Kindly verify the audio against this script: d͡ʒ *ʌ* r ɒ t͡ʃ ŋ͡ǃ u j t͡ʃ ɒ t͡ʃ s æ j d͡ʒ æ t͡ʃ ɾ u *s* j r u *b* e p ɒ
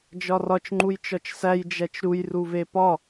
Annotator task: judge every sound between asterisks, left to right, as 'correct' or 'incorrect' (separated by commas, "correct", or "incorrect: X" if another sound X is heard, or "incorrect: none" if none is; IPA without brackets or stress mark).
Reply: incorrect: ɒ, incorrect: none, incorrect: v